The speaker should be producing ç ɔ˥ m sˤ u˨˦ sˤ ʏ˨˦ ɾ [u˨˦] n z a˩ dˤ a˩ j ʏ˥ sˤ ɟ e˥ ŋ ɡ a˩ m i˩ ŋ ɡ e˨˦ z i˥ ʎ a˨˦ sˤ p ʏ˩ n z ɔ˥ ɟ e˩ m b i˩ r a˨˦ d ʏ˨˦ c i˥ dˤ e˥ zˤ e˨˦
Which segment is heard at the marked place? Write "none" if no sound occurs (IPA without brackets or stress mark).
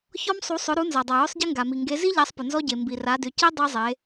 u˨˦